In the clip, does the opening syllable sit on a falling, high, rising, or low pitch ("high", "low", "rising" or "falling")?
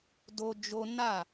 high